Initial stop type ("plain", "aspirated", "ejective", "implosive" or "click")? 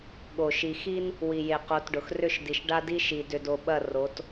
implosive